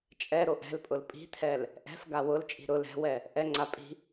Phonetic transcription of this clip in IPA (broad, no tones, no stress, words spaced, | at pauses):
t͡ʃʼɛɾoʔ ɛ̤lpʼʊl pʼi̤t̪ʰɛl | ʔɛ̤f ɡawʊlt͡ʃʼi̤ ɾʊl ɛ̤wɛ | ʔɛŋ͡ǀa pʼi̤